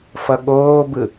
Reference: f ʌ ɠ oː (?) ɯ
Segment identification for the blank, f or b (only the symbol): b